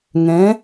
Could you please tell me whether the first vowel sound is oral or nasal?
nasal